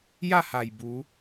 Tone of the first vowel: falling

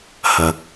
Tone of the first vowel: low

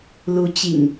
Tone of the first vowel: rising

